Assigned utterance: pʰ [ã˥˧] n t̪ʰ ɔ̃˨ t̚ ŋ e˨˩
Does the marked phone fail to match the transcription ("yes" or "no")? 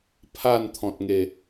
yes